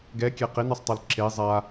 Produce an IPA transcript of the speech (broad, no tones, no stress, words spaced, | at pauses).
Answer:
ɡɛkʲɛ qenɯsˤtˤɤl ǁe zˤa